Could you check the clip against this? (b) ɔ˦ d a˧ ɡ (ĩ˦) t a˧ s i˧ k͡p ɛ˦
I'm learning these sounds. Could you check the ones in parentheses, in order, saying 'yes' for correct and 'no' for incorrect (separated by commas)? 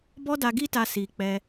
yes, no